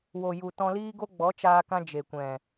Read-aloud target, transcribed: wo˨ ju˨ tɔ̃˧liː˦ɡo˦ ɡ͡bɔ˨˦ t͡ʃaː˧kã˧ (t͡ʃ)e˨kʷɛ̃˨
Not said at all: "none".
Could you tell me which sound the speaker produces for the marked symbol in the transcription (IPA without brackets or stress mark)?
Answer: d͡ʒ